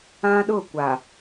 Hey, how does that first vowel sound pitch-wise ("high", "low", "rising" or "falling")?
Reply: high